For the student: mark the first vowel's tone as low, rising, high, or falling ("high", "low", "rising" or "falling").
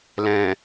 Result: low